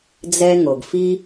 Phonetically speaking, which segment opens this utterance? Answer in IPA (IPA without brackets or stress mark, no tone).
d͡z